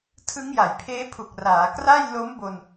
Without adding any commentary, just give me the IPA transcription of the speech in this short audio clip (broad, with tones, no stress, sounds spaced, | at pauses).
tʰ ɯ˦˥ ŋ j a˩˦ j pʰ eː˦˥ pʰ u˨˩ k̚ r aː˩˦ k r a˥˩ j l o˦˥ m b o˧ n